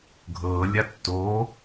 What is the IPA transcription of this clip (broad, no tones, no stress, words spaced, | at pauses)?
ɡʱɤːlʲa tːo